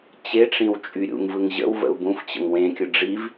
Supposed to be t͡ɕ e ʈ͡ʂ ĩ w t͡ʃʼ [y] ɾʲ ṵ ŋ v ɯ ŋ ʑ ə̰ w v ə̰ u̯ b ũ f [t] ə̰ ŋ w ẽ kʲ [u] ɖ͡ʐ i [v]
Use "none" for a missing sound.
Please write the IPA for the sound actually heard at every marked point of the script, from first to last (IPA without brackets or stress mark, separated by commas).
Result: y, t͡ɕ, ɯ, v